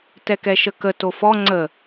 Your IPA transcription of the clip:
t ɛ k ɛ ʃ ə k ə t o f ɔ ŋ͡ǀ ə

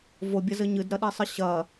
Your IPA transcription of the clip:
v o bʲ ɐ z ɘ ɲ ɨ d ɾ ɐ ɗ i sˤ ɨ ɕ ɐ

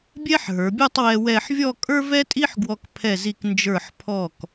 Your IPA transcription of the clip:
bʲ ɛ˥ ħ ɦ ə˞˩˧ bʲ ə˞˥˧ tˤ w ɛ˧ w ɛ˥˧ ħ vʲ ɔ˥˧ kʼ ə˞˥ v ɛ˥ tʼ i˥ ħ ɡ w ɔ˧ k pʰ ɛ˧˩ z i˧˩ k n d͡ʒ ə˞˧˩ ħ pʰ ɔ˧˩ k

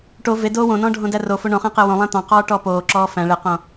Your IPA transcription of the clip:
ʈ o v e d oː w õ n ɔ̃ː ɖʱ õ d æ r o f o ɳ õ χ æ̃ q e w õ lˠ æ̃ t̪ ɑ̃ q ɔː ʈ ɔː p oː ǁ ɔː f æ̃ ɭ e q õ

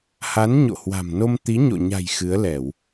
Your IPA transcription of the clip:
h a˨˦ n ɲ o̰˧˨ h w a̤˨˩ m n o˧ m t̪ i˨˦ ɲ o̰˧˨ ɲ a̤˨˩ j x ɨ˨˦ ə̯ l ɛ˧˩˨ w

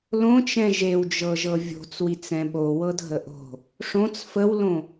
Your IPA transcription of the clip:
l õ t͡ʃ ɛ̃ ʒ e w d͡ʒ ɤ ʒ ɤ vʲ o̤ t͡s w i t͡s ɛ̃ ɓ o w ɤ dʱ ə ʔ o̤ | ʂ õ t͡s f ə w l õ

